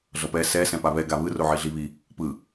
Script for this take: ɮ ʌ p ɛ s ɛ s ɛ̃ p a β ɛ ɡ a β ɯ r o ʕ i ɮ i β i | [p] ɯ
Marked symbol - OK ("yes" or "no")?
yes